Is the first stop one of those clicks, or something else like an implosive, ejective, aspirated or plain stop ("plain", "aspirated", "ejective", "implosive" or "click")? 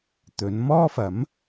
plain